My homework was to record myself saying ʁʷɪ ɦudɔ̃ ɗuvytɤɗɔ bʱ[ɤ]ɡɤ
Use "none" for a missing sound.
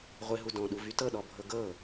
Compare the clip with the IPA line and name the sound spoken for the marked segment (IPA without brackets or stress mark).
ɤ